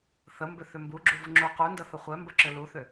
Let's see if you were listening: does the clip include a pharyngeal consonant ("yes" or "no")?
no